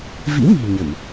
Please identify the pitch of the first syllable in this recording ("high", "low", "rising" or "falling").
rising